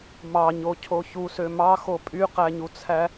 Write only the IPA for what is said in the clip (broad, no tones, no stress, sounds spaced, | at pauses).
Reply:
m ɑ ɲ o cʰ o ç u s ø m ɑ x o pʼ y q æ ɲ u t͡sʰ æ